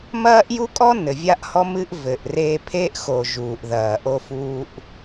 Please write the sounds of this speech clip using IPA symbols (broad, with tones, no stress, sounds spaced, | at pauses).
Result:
m ɐː˦ ʔ j u˦ kʼ ɔ˦ n ɘ˨ vʲ a˦ ʔ h ɔ˦ m ɨ˦ ʔ v ɘ˨ ʔ r eː˦ pʰ e˦ ʔ x o˨ ʒ uː˨ ʔ ð ɐː˨ ʔ o˦ f uː˦ ʔ